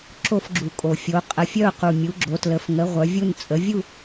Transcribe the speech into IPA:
ǁo˥˧fɡ͡ǁu˨˩kʼo˨˩fʲo˨˦ qʼə˨˦fʲœ˥˧ʊ̯qu˨˩ mʲu˨˦ɡ͡ǁo˨˦tlə˨˦f ŋə˨˦ ʁʷœ˨˦vʲu˥˧n t͡sʼə˨˦vʲu˥˧

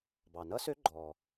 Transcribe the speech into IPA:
bɑ˩nʌ˦˥sø˦˥ ɡ͡ǃɔː˩

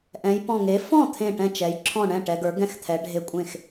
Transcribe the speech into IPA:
ʔɛ̃˩˧jpɔ̃˧˩ŋe˩˥ fɔ̃˥˩ t̪ʰẽ˥˩ʈɛ̃˥˩t͡ʃɛ˩˥j ǁʰɔ̃˥˩ɳɛ̃˥˩ ʈɛ˩˧ɡə˞˩˥ ɡɛ̃˥˩xt̪ʰɛ˩˧ ɖʱe˦˥kʷʼẽ˥˩x

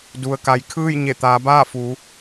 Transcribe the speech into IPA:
du˩ə̯ka˩˧j kʰɯː˥˨jɲe˧˩t̪aː˩˧baː˥˨ fu˩˧

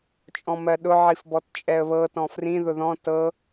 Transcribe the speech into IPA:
t͡ʃʼɔ̃mɜɗʊ ʕifbɔtt͡ʃʼɛə̯βɤ tɔ̃frĩ ðʊðɔ̃ tɤ

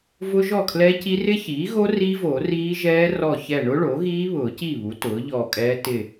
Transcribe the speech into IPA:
vʊ˦˥ʒɔ˥˩kʰlɛ˦˥ci˦˥ rɪ˦˥çiː˩˥ɣo˦˥ riː˦˥vo˨˩˦ riː˦˥ʒɛː˦˥ rɔ˧˩çɛ˧˩ ɳʊ˦˥ɭo˩˥ɣiː˦˥ βʊː˨˩˦ci˥˩βu˩˥ tʊː˩˥ʎɔː˧˩kʼɛː˦˥ tɪ˧˩

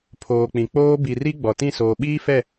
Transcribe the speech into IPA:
pʰoː˨k͡pĩ˨ k͡poː˦ bi˨ri˦ ɡ͡bɔ˨tĩ˦˨soː˨ ɓiː˦fɛ˦˨

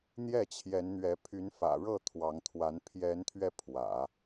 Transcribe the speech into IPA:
n̪jɛ˥˩t͡ɕʰjɛ˧˥nn̪ɥɛ˧˥ pʰy˧˥nfä̰˨˩ɻɤ˥˩ t̪ʰwɑ˧˥ŋt̪ʰwa˧˥n pʰjɛ˧˥nt̪ʰɥɛ˧ pʰwä̰˨˩˦

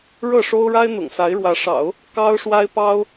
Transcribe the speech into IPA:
ɻɤ˥˩ʂo˥ʊ̯ɻa˥ɪ̯ n̪ʊ̰˨˩ŋsa˧˥ɪ̯ɻwä˧˥ʂɑ̰˨˩˦ʊ̯ | kɑ˥ʊ̯ʂwa˥ɪ̯pɑ˥ʊ̯

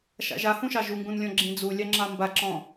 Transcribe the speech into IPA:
ʃa̰ʒahũʃɑ ʒuŋɡũnlʲɔ̃ ɡ͡ǁĩd͡zulʲɑŋ͡ǁɑ mbaǁɔ̃

